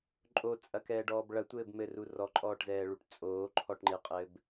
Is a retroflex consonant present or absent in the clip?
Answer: present